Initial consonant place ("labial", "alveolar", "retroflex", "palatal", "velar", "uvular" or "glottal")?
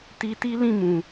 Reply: alveolar